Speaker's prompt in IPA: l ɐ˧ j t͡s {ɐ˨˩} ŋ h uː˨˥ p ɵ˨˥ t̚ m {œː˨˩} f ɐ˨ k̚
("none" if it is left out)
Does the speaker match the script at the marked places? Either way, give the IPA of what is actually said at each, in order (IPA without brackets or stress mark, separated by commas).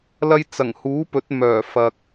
ɐ˨˩, œː˨˩